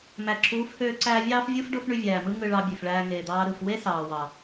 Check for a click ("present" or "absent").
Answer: present